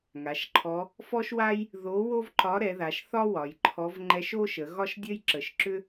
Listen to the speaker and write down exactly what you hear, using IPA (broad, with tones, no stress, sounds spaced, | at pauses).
ŋ a˩˧ ʃ ǃʰ ɔ˧˥ | f ɔ˥ ʃ w a˥ j | ð o˧˥ w o˥ v ǃ ɒ˧˥ ɾ ɛ˩˧ ð a˩˧ ʃ θ ɒ˥ w ɒ˩˧ j ǃʰ ɔ˧˥ v ŋ͡ǃ ɛ˧˥ ʃ o˥ ʃ ə˩˧ ɣ ɒ˥ ʃ dʲ ə˥ j ǁ ə˩˧ ʃ ǁ ʏ˥